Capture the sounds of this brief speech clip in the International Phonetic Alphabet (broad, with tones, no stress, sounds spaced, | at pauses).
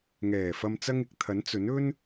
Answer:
ŋ ɛː˨˩ f ɐ˨ m t͡s ɐ˧ ŋ ɪ˨ k̚ t̪ʰ ɐ˨˥ n t͡s ɵ˨˥ n ɵ˥ n